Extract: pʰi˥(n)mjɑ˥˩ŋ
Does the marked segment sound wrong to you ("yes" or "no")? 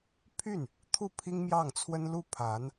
yes